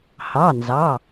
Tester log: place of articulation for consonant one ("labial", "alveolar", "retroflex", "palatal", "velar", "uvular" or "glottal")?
glottal